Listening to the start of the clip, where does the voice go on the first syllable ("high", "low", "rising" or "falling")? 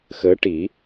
rising